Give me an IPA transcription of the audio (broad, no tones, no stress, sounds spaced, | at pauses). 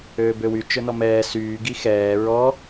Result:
øː b ø w y t͡ʃ ɵ n ɔ m ɛː s yː ɡ i x ɛː ɹ ɔ